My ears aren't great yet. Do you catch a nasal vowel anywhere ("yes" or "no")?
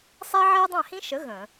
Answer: yes